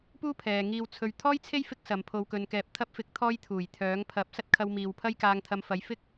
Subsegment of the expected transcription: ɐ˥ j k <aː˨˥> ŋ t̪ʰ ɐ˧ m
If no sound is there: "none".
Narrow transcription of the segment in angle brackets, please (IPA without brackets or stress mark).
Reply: aː˧